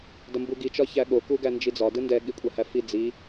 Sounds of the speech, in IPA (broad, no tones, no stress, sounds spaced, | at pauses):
d ɐ m b u ɡ i t͡ʃ ɒ ç æ ɠ o k u ɡ æ n d͡ʒ i d͡z ɒ d ɯ n d ɛ ɠ i kʷʼ ɐ h æ f i d͡z i